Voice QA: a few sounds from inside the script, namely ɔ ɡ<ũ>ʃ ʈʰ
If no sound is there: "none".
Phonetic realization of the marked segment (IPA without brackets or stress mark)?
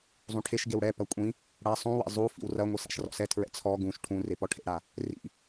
ũ